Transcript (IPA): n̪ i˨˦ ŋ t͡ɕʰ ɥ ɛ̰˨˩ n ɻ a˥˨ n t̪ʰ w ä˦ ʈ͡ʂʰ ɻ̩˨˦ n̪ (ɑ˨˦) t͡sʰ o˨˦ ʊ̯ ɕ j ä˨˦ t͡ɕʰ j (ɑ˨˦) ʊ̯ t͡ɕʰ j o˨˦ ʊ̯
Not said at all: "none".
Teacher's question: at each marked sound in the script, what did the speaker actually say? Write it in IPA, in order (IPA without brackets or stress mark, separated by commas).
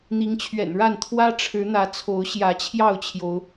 ä˨˦, ɑ˥˨